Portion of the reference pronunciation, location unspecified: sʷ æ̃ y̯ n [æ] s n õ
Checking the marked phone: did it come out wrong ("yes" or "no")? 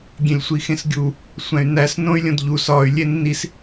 no